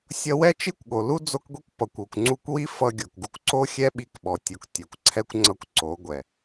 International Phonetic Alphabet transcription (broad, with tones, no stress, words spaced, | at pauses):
sʲʌ˧wɛ˦ t͡ʃi˦kʷɠo˨ lu˦ d͡zo˦kɡʷi˦kʷ pʌ˨kʷ o˨kʷŋ͡ǀu˧kʷwi˦ fʌ˧ɡʲo˨kɡu˧kʷǀo˦ xʲɛ˦ɓi˧k ɓɔ˨tʲo˨ktʲɛ˨kʷǀʰɛ˦kʷ ŋ͡ǀʌ˦kʷǀo˨˦ ɡʷɛ˨